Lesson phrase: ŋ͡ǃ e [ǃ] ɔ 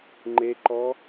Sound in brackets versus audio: correct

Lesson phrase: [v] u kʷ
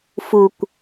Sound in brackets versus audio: incorrect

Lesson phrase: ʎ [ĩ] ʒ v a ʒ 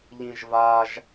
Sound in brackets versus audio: correct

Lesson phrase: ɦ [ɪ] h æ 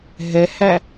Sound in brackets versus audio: incorrect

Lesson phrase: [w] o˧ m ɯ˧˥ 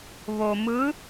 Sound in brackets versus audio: incorrect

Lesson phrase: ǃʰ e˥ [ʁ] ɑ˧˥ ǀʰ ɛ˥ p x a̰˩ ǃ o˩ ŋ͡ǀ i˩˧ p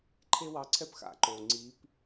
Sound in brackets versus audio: incorrect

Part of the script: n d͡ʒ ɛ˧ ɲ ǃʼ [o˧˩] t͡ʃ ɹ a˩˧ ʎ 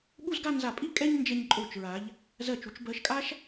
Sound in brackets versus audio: correct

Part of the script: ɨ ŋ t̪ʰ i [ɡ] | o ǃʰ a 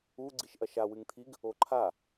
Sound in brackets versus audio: correct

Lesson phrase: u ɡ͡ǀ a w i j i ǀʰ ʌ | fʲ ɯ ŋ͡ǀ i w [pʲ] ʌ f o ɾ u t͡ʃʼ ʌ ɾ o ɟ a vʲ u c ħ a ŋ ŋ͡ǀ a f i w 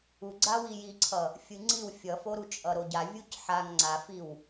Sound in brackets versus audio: incorrect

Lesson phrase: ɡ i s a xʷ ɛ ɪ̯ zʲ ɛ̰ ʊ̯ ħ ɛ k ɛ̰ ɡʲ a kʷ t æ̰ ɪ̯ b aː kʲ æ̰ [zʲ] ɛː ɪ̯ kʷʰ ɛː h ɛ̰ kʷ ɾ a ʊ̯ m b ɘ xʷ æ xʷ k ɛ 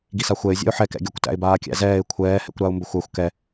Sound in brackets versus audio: incorrect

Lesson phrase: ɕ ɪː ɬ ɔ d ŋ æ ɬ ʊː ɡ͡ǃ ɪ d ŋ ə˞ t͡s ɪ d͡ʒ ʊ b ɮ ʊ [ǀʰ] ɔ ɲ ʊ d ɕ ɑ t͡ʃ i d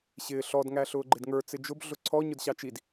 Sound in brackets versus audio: correct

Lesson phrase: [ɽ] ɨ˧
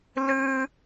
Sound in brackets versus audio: incorrect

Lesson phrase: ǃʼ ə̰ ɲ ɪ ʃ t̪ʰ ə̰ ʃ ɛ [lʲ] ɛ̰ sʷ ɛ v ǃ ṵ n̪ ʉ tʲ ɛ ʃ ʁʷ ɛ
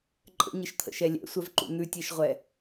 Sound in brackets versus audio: correct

